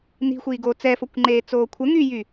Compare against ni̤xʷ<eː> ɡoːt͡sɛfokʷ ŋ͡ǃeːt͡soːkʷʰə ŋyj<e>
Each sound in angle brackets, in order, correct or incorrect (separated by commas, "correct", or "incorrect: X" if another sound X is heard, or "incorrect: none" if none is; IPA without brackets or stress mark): incorrect: iː, incorrect: y